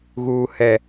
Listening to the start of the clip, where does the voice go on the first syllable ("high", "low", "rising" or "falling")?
high